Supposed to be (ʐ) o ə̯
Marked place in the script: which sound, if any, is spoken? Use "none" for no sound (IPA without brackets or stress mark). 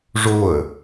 ʐ